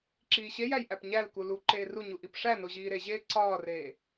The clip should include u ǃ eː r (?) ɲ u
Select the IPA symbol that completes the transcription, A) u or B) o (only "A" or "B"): A